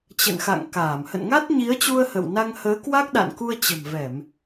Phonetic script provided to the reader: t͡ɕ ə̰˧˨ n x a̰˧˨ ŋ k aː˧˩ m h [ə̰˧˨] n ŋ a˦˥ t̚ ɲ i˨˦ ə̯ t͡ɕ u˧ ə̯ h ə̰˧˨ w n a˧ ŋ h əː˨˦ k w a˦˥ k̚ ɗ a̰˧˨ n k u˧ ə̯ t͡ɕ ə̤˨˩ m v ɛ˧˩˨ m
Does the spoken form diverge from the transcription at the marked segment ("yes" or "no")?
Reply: no